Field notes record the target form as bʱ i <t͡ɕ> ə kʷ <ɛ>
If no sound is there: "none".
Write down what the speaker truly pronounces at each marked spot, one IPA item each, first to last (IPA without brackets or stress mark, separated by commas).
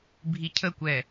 cʰ, ɛ